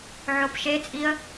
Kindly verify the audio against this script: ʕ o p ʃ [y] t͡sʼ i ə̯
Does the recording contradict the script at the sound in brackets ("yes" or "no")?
yes